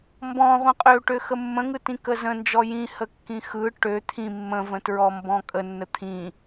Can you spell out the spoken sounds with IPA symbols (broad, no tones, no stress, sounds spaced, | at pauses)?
m b ɔ̃ ʁʷ ĩ qʼ ø ʈ ø x ə mː ə̃ ŋ ɯ t ĩ k ə z ə̃ n d͡ʒ ɔ j ĩ h ə kː ĩ x ɯ ʈ ø t̪ʰ ĩ mː ə̃ v ə̃ t ɹ ɔ m b ɔ̃ kʼ ə nː ə t̪ʰ ĩ